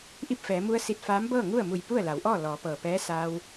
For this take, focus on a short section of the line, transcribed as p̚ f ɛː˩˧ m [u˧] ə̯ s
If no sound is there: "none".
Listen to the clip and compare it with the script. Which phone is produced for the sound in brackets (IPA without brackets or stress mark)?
u˧